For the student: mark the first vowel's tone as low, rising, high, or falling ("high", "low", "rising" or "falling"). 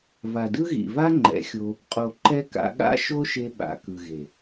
low